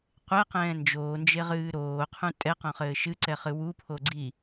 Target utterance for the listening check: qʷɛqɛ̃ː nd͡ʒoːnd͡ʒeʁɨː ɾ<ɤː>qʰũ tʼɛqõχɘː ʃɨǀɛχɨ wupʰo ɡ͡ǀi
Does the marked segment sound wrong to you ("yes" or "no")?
yes